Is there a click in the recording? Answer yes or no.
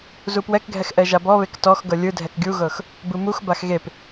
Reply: no